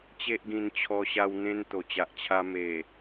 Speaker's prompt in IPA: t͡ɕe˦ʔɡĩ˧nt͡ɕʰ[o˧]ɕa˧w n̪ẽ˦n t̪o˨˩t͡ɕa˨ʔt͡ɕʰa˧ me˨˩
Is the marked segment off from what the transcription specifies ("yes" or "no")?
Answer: yes